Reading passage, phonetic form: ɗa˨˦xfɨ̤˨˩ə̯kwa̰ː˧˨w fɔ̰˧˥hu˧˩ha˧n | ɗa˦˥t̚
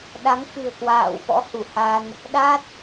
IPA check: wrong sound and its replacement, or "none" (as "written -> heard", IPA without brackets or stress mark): x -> ŋ